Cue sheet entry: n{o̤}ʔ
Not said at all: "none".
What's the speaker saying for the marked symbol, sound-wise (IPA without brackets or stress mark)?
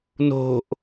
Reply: o̤